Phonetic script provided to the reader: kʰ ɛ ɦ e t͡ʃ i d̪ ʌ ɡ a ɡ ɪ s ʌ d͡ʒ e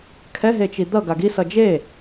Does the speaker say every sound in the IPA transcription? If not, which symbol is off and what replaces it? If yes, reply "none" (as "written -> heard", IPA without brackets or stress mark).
ɪ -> i